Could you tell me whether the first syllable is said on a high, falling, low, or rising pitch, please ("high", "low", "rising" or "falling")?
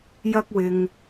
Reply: high